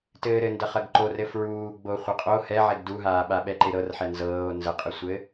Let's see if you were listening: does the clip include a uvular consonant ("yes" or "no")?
yes